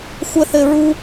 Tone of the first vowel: high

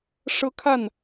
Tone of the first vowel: high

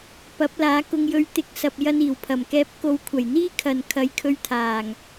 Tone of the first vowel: rising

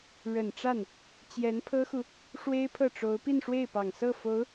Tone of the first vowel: low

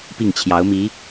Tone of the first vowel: falling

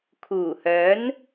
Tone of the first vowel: low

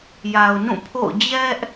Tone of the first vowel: low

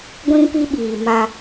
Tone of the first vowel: high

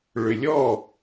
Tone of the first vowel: low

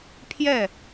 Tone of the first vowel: falling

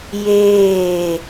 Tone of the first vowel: falling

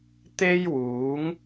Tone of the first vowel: high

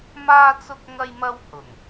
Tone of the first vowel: high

